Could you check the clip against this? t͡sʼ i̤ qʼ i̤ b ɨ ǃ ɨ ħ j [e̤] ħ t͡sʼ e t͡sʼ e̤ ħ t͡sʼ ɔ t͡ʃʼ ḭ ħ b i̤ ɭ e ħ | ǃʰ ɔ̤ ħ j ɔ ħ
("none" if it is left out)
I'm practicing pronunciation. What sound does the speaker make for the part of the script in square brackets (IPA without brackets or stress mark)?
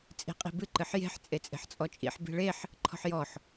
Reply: e̤